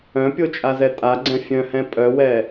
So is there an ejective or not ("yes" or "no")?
yes